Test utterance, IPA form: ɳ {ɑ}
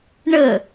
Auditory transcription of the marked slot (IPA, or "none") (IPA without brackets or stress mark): ə